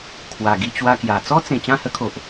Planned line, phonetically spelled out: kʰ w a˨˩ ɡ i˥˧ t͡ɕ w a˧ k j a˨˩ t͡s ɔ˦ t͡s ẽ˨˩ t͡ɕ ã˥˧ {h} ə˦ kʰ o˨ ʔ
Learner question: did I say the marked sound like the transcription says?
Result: yes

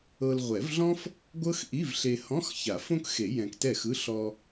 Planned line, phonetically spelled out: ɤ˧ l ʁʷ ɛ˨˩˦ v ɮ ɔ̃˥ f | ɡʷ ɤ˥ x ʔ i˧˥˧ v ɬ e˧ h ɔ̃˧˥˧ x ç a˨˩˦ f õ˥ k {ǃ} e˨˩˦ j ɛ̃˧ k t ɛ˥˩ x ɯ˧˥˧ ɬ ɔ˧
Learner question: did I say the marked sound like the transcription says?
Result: no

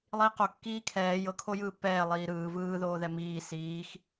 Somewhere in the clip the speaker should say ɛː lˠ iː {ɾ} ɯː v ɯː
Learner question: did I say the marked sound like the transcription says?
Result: yes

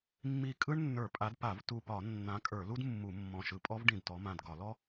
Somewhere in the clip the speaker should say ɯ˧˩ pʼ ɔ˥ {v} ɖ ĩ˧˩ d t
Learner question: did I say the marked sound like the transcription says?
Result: yes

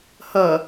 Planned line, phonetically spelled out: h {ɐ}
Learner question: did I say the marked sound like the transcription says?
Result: yes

